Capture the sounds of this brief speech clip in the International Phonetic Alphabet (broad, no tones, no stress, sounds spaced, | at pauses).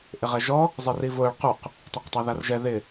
ʔ ɪ ʁ ɛ ʒ ɔ | zˤ ɛ r i v ʊː ɭ q u q | tˤ a q tˤ a ð a r ʒ ɛ ð ɪ